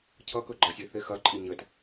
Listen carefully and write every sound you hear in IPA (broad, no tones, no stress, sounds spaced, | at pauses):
cʰ ʌ k ɵ ɡ͡ǃ ʌ sʲ e θ e x ɐ ǃʼ i ɲ ə t